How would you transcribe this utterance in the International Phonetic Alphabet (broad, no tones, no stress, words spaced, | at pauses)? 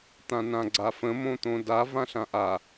t̪ãnãɡ͡ǀafə̃ mõt̪õda vãɬãʔa